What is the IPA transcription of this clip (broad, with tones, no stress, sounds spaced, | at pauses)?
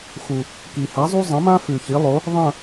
x u˨˩ | k i˨˩ h a˨˥ zˤ u˥ zˤ ɐ̃˨˥ m ã˥ f ʉ˨˩ ç i˨˥ lˠ o˨˥ | ðˤ ɐ̃˥˧